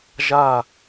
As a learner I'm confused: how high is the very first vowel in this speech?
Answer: low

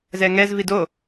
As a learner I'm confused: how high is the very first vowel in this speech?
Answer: mid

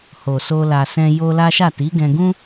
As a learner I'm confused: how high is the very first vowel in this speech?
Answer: mid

